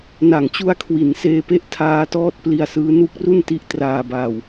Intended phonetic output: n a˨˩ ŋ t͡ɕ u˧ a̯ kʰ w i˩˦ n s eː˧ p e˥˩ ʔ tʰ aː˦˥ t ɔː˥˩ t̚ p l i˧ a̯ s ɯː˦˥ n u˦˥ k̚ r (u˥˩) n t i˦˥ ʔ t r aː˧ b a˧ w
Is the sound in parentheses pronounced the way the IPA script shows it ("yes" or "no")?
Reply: yes